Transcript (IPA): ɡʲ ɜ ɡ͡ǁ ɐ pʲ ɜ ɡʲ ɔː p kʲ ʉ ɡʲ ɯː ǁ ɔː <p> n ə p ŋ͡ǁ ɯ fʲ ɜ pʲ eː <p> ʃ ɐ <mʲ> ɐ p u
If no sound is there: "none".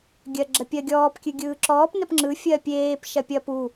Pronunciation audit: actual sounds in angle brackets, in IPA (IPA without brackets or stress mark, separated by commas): p, p, pʲ